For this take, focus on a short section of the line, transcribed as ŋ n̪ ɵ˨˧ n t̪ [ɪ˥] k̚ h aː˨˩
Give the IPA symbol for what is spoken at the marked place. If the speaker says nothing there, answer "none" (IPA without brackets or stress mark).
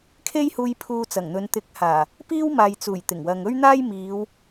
ɪ˨˥